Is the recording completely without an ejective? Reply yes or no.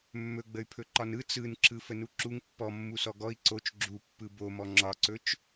yes